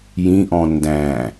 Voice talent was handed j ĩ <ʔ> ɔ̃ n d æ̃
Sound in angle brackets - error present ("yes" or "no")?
no